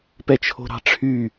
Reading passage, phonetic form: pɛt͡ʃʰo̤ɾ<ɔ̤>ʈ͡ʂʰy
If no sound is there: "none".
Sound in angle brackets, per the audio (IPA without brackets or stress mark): ɑ̤